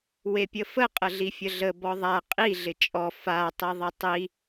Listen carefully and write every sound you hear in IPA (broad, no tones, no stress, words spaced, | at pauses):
wepʲəfə qʼəɮifʲəɮə bɔðˤa qʼi ɮɪt͡ʃʼɔ fa tˤiðˤɪtˤi